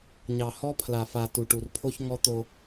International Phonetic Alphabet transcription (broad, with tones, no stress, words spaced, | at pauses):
ɲɑ˨hɔ˦pʰla˨fa˨ tu˨ʈu˨rpʰo˦ç ŋɔ˦t̪o˦